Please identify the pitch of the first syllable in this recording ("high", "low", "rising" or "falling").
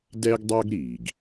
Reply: high